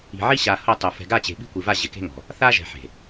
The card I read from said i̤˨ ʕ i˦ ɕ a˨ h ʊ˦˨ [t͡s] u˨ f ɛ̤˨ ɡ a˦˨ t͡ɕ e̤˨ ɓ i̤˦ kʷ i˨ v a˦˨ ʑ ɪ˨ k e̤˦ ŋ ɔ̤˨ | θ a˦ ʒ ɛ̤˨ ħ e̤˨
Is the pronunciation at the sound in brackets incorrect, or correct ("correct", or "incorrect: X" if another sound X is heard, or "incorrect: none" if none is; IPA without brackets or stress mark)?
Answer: incorrect: tˤ